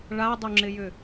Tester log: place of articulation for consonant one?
retroflex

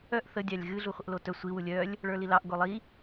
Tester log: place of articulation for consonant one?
glottal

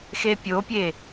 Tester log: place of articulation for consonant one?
velar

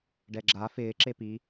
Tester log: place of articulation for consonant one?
retroflex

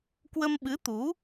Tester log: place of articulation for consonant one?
velar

